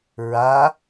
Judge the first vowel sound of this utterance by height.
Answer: low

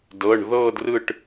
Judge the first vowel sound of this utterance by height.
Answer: mid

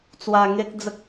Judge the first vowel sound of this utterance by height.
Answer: low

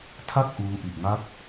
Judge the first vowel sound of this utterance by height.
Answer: low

